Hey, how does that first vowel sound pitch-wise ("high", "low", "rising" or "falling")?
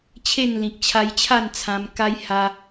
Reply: falling